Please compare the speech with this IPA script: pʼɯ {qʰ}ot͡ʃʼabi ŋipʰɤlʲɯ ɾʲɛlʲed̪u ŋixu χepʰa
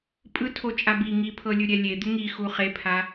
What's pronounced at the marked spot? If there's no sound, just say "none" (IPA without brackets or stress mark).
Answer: tʰ